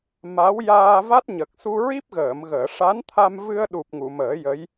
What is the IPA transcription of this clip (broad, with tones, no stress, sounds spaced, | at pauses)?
m a˧˥ w j aː˧ v a˦˥ t̚ ɲ ə˨˩ k̚ s u˧ ɹ i˦˥ p̚ ɣ əː˨˩˨ m ɣ əː˨˩˨ ʂ a˧˥ n t̪ʰ a˧ m v ɨ˧ ə̯ ɗ u˨˩ p̚ ŋ u˨˩˨ m əː˨˩˦ j ə˧˥ j